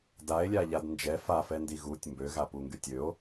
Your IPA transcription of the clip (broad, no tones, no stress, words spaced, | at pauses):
dae̯lʲaʎad nd͡ʒɛ fafɛndi ɣutʲ mbøɣapuŋɡy tʲøo̯